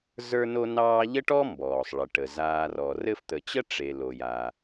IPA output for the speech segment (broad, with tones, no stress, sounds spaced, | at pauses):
z ə˞˦ n o˦ n ɑː˦ ʎ ə˥ ʈ ɔ˥ m b ɔː˩ sˤ ɭ ə˩ ʈ ə˩ z aː˨ r ɔ˩ r ɘ˦ f t̪ ə˨ t͡ɕ ə˥ ʈ͡ʂ e˨ l o˩ j a˩